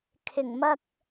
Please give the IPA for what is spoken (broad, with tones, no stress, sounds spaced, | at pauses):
kʰ ɪ˨˩ ŋ m ɐ˧ k̚